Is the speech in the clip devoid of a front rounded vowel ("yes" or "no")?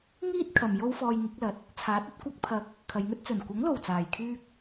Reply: no